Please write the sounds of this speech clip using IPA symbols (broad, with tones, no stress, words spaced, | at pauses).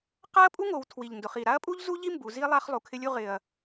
qa˥ɐ̯pʼu˥ŋo˩˧w tʰwi˨˩ʎndʊ˩˧χi˨˩ ɾa˥ɐ̯pʼu˥ʎzu˥ʎi˥ mbu˩˧ zi˥ lˠa˥χ lˠu˩˧kʰɪ˥lʲu˥ ʁɪ˨˩ɐ̯